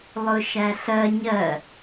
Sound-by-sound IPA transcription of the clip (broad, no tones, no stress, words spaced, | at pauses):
lˠʊʃæɬɜ ɲɜ